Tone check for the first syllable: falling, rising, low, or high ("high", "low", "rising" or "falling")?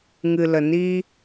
low